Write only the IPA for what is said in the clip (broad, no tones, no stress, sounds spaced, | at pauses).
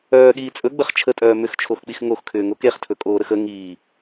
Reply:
œː ɠ iː t͡sʼ ɵ ɡ͡b ə χ t͡ʃʰ ə tʼ œː m ʏ x t͡ʃʰ o x k͡p i x ŋ o x kʰ ʏː ŋ o k e χ tʰ ɵ kʼ oː ɾ ə x ə ŋ iː